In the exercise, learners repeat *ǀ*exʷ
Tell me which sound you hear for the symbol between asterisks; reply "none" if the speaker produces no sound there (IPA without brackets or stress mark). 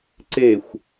ǀ